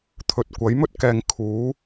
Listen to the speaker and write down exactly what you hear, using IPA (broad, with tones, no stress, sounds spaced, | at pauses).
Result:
t̪ʰ ɵ˨ t̚ kʷ ɐ˨˥ j m ɵ˥ t̚ k ɛː˨ ŋ kʰ uː˨˥